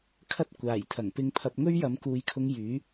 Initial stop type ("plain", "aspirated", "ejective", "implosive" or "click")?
aspirated